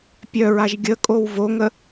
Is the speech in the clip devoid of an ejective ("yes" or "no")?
no